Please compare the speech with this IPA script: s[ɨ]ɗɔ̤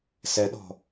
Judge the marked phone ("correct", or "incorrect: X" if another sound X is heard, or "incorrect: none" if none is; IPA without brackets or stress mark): incorrect: ɛ